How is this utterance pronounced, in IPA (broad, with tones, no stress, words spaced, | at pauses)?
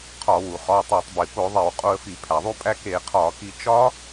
qʰɒ˧˩˧wu˩ χɒ˩˧˩ tˤæ˧˩˧tˤbi˩po˧˩˧ðˤe˧˩˧w qʼo˧ə̯fi˧˩˧ pʰæ˩ðˤu˧pʼæ˧ ke˧˩˧qʰɒ˧˩˧ki˧ t͡ʃɒ˦˥